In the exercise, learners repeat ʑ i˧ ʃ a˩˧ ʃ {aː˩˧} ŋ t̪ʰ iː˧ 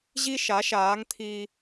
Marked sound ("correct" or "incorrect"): correct